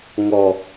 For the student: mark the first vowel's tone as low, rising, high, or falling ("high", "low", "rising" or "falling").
low